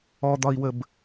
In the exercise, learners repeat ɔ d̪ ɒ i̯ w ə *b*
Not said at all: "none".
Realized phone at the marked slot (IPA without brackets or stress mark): b